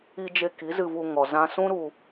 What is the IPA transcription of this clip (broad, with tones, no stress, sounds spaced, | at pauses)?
i˧ d͡ʒ e˧ k i˨˦ z ɨ˧ v u˧ ŋ ɔ˨ z ã˧ s ũ˦ ɾ u˧